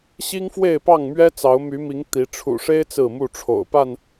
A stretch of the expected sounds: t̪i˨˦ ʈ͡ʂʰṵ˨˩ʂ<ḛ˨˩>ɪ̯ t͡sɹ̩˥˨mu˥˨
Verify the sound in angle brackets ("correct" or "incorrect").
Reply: incorrect